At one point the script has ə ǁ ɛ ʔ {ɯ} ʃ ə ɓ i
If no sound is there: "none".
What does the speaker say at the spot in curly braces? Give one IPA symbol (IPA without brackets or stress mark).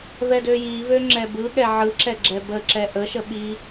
ə